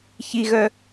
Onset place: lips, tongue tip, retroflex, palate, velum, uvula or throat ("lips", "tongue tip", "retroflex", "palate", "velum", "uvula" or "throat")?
palate